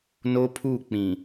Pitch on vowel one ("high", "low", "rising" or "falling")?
high